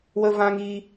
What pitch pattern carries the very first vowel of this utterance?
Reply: high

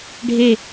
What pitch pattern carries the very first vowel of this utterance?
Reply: falling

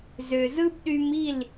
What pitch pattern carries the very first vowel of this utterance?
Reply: low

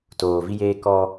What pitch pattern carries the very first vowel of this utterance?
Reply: low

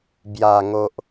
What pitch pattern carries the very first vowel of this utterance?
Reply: low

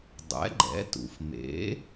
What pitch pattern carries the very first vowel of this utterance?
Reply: rising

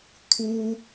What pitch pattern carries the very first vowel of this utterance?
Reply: high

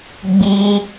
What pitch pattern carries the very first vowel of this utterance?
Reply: high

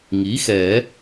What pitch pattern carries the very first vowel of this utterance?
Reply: rising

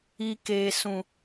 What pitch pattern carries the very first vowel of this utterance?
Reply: low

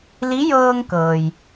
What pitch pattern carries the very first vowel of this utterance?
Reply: rising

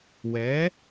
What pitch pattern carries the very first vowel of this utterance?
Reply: rising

